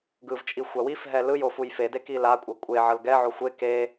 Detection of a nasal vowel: absent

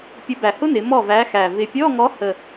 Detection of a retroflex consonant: absent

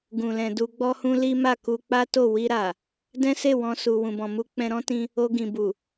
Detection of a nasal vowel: present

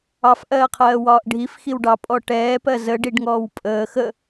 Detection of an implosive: absent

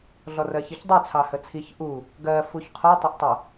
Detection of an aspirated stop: present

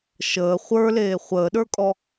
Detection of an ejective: present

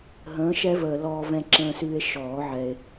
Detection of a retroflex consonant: absent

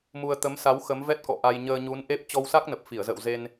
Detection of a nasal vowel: absent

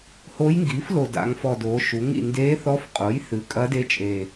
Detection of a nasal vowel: absent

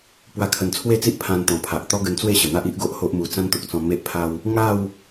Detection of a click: absent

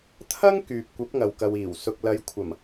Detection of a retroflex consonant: absent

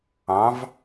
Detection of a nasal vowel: present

